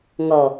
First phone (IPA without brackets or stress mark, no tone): ŋ